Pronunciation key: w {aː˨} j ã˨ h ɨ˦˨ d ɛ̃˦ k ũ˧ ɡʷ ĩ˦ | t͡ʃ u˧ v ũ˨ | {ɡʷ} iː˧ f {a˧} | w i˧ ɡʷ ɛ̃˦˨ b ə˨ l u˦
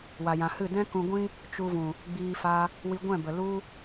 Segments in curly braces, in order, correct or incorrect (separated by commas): incorrect, incorrect, correct